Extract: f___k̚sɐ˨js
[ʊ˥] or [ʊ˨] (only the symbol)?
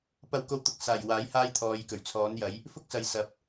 ʊ˥